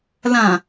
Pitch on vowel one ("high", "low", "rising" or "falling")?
low